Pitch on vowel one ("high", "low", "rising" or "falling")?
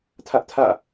high